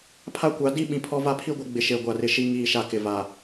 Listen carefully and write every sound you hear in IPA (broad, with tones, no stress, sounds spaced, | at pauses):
pʰ a˦ kʷ a˨˦ d i˦ ɓ ĩ˨ pʰ ɔ˦ v a˦ pʰ i˦ ɡʷ ɪ˨˦ ɡ͡b ɪ˨ ʃ e˨ ɡʷ a˨ r ɪ˨ ʃ i˦ ŋ iː˦˨ ʃ a˦ k ɪ˨ v a˨